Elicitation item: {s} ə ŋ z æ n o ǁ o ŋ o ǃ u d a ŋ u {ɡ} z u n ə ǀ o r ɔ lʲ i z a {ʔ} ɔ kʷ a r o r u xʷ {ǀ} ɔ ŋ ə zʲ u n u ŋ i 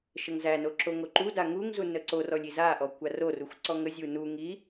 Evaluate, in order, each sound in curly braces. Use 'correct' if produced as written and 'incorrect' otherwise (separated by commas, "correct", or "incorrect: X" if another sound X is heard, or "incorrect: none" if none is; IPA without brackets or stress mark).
incorrect: ʃ, incorrect: ŋ, correct, correct